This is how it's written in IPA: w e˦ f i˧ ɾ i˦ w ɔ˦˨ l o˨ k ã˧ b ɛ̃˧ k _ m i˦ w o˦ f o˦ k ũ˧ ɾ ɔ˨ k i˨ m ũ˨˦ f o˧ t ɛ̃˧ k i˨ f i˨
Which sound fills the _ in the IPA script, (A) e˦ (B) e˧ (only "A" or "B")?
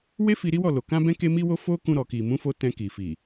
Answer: A